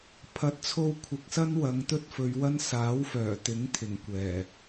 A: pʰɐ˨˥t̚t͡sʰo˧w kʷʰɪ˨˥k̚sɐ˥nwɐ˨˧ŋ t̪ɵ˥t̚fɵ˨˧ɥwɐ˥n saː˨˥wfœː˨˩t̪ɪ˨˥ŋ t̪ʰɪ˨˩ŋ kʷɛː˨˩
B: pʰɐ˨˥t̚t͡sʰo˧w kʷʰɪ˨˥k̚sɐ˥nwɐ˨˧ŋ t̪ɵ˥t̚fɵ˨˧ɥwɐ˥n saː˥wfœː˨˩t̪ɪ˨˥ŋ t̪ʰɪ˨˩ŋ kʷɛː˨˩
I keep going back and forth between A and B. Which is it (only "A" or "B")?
A